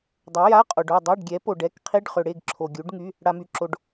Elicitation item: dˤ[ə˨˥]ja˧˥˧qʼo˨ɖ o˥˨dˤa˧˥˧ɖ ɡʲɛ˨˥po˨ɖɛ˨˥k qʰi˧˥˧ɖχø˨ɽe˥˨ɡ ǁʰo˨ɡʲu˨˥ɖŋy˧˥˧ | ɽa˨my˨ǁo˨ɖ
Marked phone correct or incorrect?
incorrect